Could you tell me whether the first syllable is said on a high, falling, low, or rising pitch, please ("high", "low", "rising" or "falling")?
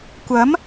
rising